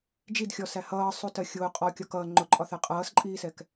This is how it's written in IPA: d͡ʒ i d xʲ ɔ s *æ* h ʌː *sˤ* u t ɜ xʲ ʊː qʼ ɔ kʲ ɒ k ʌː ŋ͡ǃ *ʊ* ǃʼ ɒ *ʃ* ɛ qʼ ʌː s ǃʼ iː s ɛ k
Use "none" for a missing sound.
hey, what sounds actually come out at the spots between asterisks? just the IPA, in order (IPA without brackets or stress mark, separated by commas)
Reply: æ, sˤ, ʊ, θ